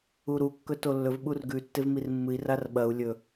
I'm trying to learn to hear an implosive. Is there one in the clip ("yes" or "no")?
yes